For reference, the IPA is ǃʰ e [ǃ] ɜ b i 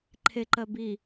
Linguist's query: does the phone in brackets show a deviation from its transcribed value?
no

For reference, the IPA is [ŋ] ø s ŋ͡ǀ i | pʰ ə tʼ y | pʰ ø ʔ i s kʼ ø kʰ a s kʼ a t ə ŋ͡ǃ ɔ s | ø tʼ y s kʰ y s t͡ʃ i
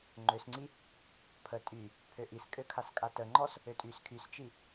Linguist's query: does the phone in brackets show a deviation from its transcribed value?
yes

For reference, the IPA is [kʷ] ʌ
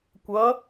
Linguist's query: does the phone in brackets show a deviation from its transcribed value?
no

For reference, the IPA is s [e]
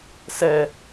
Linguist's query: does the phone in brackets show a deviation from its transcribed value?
yes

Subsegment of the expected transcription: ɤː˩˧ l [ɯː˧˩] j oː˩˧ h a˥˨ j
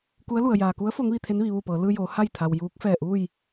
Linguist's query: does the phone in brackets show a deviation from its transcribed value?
yes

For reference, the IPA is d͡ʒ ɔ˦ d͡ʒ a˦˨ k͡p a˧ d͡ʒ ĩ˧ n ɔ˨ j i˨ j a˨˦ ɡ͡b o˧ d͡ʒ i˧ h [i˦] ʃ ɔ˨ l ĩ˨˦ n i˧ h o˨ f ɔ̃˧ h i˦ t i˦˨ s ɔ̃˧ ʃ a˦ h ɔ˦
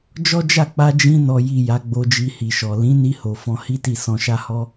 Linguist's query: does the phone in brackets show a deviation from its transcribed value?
yes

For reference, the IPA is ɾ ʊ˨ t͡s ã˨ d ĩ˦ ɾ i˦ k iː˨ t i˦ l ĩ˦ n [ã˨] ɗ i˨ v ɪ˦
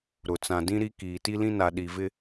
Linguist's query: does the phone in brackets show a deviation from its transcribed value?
yes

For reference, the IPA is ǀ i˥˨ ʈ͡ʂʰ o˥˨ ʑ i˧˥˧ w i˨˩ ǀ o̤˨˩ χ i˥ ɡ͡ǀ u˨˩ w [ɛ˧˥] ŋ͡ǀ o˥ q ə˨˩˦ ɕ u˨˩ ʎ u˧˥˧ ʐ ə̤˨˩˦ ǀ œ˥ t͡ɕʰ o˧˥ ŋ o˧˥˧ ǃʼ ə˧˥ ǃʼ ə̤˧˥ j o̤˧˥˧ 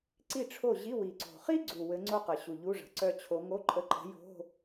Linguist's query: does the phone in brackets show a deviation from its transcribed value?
yes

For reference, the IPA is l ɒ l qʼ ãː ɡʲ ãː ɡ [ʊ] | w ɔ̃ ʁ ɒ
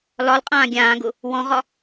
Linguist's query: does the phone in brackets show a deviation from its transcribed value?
no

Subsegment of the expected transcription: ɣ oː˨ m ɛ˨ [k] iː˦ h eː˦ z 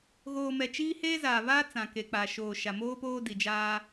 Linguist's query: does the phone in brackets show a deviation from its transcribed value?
yes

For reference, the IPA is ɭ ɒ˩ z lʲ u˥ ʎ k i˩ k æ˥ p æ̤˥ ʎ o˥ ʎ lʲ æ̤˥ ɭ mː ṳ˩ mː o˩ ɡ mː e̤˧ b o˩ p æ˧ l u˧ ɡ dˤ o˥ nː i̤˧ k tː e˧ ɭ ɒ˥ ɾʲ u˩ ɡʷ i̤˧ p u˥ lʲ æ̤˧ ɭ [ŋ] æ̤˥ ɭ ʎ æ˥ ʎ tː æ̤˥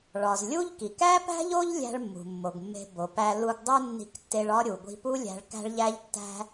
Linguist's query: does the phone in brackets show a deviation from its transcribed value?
yes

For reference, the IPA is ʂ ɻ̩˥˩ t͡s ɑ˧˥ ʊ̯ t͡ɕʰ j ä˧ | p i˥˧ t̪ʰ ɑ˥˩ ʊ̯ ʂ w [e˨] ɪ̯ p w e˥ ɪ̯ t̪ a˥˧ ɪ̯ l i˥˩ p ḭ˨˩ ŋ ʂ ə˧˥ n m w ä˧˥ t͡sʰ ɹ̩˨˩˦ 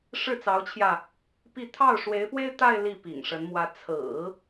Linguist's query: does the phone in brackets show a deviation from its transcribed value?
yes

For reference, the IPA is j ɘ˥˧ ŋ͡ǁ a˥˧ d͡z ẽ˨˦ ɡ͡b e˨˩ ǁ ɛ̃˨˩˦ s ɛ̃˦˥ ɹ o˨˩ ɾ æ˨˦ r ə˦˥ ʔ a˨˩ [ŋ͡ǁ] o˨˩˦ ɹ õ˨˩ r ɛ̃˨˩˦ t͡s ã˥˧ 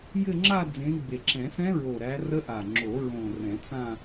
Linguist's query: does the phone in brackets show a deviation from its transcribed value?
no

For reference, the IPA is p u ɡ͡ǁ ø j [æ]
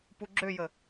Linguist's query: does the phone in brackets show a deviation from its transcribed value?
yes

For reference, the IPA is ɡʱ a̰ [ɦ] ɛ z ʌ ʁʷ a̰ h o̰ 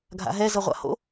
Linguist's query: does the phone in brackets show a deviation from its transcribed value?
no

